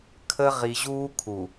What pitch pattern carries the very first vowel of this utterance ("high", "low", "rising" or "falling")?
high